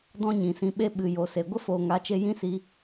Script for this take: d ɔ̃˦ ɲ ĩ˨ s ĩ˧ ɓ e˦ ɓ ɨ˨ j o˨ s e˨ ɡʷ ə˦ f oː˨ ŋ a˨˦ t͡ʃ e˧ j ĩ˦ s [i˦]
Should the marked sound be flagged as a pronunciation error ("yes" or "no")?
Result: yes